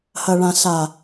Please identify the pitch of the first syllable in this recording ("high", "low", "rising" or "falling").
low